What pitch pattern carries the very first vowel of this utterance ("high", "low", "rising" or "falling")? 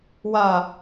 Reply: low